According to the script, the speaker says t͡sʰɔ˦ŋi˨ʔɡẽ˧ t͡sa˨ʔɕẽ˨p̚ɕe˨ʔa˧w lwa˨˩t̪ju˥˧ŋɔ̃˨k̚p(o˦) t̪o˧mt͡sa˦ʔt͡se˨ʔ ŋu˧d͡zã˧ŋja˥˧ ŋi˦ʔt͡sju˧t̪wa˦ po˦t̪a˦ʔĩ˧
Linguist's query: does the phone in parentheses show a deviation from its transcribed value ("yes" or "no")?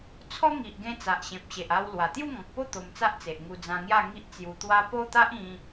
yes